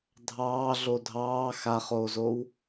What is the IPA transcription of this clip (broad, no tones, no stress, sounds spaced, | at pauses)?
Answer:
dʱ ɑː ɮ o dʱ ɑː x a χ oː z o w